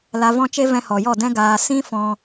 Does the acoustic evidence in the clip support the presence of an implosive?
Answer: no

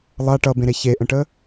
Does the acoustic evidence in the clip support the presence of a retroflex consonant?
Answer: yes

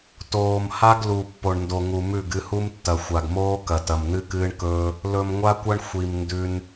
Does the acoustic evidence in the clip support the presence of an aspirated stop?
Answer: no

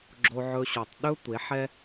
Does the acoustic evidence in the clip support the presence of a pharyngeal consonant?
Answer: yes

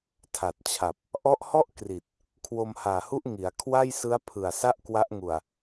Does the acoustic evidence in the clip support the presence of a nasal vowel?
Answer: no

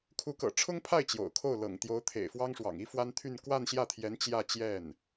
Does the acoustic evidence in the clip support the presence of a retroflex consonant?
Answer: yes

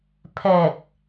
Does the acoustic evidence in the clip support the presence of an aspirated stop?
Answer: yes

